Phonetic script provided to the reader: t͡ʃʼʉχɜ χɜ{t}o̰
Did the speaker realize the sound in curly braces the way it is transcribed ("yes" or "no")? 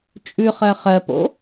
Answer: no